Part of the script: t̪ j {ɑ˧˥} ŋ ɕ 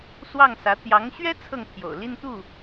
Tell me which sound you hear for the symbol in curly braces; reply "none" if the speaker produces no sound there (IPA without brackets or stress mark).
ɑ˧˥